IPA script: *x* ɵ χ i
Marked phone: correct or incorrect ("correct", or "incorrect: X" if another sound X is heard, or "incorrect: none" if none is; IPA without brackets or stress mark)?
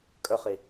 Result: incorrect: kʼ